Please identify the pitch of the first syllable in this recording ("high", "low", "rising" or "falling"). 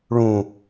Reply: low